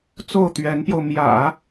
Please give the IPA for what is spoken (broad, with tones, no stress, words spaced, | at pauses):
t͡so˥˩ʊ̯t̪ɥɛ˧˥npjo˧ʊ̯ mjä̰˨˩˦